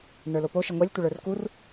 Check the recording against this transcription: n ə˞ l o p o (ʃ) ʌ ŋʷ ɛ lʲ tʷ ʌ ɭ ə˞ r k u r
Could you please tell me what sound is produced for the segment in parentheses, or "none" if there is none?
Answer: ʃ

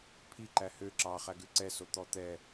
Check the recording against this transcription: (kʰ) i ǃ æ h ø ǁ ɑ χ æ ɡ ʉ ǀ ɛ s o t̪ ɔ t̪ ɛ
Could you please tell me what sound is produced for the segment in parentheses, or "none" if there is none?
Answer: pʰ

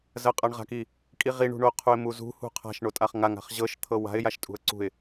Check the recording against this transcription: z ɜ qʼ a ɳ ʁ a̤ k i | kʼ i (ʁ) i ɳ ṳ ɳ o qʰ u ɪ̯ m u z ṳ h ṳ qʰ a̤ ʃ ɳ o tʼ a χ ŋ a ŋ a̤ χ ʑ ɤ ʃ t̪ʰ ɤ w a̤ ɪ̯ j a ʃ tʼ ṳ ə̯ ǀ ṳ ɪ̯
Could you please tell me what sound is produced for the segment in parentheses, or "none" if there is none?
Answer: ʁ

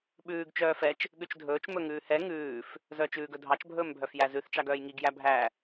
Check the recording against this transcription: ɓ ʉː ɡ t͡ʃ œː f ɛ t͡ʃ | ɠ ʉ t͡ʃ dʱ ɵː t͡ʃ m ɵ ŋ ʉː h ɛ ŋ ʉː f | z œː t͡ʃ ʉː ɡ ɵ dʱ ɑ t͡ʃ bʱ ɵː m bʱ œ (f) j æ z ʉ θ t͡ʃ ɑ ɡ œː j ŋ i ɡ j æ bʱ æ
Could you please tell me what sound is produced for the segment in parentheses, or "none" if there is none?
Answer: f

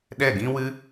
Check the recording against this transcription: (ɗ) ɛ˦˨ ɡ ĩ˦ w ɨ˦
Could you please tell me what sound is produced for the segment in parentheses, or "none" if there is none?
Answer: ɗ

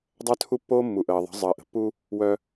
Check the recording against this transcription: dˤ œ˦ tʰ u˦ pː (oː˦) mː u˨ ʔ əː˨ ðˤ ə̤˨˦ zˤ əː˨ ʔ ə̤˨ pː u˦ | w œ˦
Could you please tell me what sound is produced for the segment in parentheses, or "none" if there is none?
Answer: oː˦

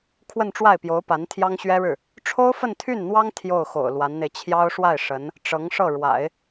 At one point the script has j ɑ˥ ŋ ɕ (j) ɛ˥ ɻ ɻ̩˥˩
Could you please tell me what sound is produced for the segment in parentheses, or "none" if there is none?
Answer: ɥ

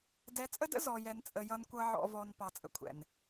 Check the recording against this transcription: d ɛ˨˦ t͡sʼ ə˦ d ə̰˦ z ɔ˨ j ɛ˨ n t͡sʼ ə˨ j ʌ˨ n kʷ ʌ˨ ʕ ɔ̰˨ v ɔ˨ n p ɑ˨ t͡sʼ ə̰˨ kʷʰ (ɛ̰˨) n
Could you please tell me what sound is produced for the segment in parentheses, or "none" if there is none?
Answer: ɛ̰˨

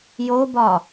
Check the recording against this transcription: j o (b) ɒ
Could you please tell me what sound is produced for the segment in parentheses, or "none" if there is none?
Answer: b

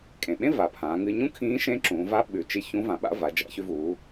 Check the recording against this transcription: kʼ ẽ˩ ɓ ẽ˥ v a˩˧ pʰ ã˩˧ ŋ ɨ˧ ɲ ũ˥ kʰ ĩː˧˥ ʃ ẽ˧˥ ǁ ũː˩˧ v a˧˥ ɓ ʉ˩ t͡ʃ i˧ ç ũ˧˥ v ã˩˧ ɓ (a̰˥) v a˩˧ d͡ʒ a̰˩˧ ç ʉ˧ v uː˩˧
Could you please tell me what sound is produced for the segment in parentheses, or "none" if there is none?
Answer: a̰˥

